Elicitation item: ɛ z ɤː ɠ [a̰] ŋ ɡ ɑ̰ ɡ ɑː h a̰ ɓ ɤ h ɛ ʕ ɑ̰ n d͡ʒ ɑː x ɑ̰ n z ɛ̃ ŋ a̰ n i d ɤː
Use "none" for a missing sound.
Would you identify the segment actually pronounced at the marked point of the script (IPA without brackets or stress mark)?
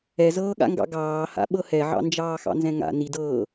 a̰